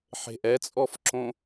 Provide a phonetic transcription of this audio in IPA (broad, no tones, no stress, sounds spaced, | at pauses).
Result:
ħ e̤ ʔ ɛ t͡sʼ ɔ f ǁ õ